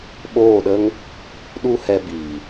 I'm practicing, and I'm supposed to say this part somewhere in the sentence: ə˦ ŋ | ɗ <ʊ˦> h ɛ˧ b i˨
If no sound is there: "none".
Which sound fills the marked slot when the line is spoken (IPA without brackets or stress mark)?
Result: u˦